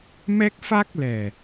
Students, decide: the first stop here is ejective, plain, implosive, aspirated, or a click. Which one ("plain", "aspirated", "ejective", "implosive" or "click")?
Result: plain